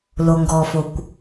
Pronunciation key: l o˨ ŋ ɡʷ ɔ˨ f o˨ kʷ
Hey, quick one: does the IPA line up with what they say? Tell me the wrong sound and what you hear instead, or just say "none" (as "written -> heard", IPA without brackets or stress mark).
ɡʷ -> ɡ